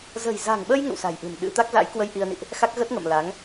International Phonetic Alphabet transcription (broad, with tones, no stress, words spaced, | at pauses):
zə̤˨˩jza̤˨˩ŋɓə˧j ŋə̰˧˨wsa̤˨˩jʔɨ̤˨˩n ɗɨ̰˧˥ t̪a˦˥k̚za̰˧˥jkwə˧j ʔi˧ə̯nḭ˧˨ʔ | xa˦˥k̚ ɣə˦˥t̚ŋə̰˧˨mla˨˦ŋ